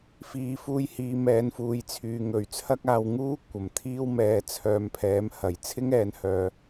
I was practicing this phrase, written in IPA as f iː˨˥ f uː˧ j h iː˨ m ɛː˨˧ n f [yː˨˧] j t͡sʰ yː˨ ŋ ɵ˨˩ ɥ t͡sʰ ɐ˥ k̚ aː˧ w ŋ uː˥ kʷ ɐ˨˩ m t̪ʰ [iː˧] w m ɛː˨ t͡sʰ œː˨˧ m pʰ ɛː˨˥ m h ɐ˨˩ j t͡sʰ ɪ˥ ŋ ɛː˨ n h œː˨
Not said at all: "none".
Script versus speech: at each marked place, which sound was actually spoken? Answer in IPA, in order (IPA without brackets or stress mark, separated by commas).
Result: uː˨˧, iː˥